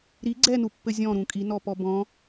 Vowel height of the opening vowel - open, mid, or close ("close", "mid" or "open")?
close